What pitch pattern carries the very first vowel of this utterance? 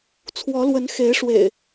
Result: rising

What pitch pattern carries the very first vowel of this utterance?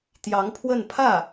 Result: rising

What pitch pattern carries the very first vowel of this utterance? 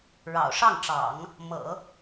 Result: low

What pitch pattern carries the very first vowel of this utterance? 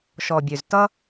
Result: low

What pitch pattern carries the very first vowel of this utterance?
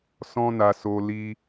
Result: high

